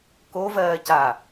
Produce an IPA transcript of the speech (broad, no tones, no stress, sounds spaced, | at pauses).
k o v ɜː c aː